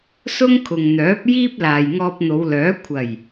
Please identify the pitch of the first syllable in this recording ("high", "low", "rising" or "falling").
high